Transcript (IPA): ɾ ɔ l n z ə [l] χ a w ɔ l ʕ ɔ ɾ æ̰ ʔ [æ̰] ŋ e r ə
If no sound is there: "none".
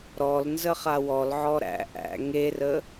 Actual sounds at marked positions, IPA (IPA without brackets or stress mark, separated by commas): none, æ̰